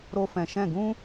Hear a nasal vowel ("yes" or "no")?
yes